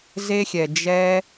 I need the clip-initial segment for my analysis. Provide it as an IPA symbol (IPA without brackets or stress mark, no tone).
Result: z